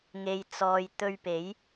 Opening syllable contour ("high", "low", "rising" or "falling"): low